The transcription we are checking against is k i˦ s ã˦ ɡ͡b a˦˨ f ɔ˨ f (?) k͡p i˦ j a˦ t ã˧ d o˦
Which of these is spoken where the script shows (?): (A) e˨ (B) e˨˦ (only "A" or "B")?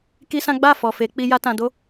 B